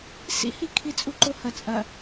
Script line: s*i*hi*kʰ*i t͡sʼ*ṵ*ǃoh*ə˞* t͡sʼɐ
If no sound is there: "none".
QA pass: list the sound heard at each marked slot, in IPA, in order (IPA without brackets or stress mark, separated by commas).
ḭ, kʰ, u, ɐ